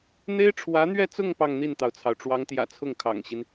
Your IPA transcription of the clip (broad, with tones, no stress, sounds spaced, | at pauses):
n̪ e˥ ɪ̯ ʈ͡ʂʰ w ä˧˥ n̪ ɥ ɛ˥˧ t͡s ʊ˥˧ ŋ p ɑ˥˧ ŋ n̪ i˥˩ n t̪ ɑ˩ ʊ̯ t͡sʰ ɑ˩ ʊ̯ ʈ͡ʂ w ɑ˧˥ ŋ t̪ j ä̰˨˩ t͡sʰ ʊ˥˩ ŋ kʰ ɑ̰˨˩ ŋ ɕ i˦ n